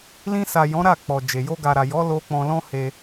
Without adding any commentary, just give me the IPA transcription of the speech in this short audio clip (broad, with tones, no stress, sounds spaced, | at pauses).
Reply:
l ĩ˧ s a˨ j ɔ̃˨˦ ɾ a˦˨ k͡p ɔ˨ d͡ʒ e˨ j o˧ ɡ a˨ ɾ a˨ j ɔ˨˦ l o˧ k͡p ɔ̃˧ l ɔ̃˦ h e˧